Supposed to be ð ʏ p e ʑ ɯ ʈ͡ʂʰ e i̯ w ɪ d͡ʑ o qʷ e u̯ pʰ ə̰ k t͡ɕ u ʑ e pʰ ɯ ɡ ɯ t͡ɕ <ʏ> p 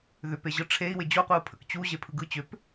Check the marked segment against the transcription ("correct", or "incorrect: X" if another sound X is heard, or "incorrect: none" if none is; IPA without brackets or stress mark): correct